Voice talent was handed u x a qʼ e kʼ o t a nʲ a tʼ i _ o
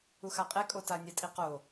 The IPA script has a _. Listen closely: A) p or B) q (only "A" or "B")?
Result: B